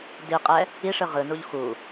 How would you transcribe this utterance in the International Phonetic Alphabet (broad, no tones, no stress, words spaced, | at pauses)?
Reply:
diqʼɛ | iʂɯ ʁɯnuʎ xu